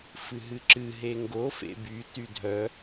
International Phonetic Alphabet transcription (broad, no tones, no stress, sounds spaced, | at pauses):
f ɨ ɦ ɨ ǁ ɨ ɦ e ŋ ɡ o f ḛ b y t y dʱ œ